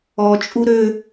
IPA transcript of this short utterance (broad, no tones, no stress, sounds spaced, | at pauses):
ɔ t͡ʃʼ u ɾ ø